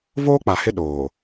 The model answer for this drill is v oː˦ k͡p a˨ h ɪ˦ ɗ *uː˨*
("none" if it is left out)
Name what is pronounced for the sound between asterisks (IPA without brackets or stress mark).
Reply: oː˨